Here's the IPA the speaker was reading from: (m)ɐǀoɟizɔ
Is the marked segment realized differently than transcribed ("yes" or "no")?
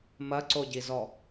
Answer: no